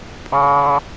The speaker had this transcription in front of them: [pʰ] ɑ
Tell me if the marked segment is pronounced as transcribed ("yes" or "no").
no